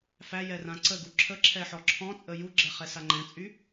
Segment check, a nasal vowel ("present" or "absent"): present